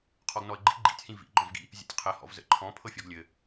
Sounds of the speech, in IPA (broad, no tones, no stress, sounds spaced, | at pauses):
qʰ ɔ ɡ n ɔ ə̯ ɡ͡ǃ ḭ ɡ͡ǃ ḭ tʲ h ĩ v ḭ ɡ͡ǃ ɔ̃ v ɡ ḭ | zʲ ə̰ tʲ qʰ ɘ h ɔ̰ v z ə̰ ǃʰ ɔ̃ pʰ ɤ fʲ ɔ ɡ lʲ ɘ